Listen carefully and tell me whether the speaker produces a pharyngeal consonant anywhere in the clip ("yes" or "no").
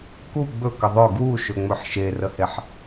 yes